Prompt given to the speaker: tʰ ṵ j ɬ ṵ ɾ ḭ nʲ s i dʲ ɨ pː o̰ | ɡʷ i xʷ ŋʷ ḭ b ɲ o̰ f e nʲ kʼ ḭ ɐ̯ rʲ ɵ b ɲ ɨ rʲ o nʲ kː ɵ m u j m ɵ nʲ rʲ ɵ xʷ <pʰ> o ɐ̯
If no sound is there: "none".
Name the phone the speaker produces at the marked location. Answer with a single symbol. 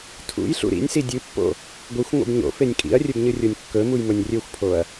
pʰ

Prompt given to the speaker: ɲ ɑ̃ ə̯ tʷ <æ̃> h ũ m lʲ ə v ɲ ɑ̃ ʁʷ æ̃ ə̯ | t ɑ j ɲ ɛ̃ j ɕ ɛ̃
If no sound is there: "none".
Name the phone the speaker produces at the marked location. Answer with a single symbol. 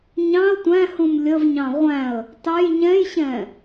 æ̃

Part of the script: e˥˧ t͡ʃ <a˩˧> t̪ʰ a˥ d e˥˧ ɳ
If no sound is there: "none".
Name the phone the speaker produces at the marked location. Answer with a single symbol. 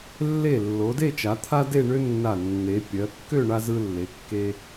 a˩˧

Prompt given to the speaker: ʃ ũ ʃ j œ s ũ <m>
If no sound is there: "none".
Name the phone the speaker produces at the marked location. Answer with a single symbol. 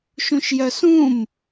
m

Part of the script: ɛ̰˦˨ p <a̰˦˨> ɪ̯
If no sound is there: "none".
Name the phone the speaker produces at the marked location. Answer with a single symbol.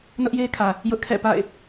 a̰˦˨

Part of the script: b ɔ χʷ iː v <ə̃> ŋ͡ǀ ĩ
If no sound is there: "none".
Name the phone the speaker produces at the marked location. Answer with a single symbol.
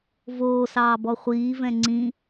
ɛ̃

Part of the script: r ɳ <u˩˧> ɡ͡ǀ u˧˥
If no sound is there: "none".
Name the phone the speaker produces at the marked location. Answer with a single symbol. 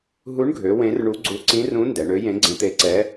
u˧˥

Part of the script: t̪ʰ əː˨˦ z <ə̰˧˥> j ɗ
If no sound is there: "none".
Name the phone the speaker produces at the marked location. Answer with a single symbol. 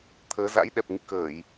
a̰˧˥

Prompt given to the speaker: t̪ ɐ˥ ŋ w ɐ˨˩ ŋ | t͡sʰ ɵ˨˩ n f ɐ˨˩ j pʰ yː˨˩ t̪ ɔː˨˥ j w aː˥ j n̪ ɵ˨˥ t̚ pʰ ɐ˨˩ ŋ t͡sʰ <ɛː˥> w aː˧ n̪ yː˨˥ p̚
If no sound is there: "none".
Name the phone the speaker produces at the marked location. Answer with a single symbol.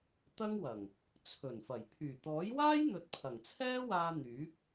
ɛː˥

